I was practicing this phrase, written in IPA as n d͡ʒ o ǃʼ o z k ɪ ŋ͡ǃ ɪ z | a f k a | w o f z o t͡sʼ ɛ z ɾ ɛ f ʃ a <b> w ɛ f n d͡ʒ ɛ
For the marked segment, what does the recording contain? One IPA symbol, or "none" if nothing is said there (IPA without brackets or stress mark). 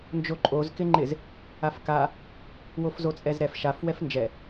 f